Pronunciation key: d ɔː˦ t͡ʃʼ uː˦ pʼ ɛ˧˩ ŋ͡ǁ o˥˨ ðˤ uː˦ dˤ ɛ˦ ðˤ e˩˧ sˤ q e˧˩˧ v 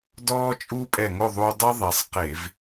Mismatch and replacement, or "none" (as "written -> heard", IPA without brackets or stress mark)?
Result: ŋ͡ǁ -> ŋ